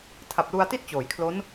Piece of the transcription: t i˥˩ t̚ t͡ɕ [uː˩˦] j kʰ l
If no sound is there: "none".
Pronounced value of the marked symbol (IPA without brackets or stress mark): oː˩˦